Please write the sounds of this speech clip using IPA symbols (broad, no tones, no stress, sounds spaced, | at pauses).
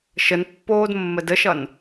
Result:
ʃ ə n pː oː d mː ə d ə ʃ ʌ n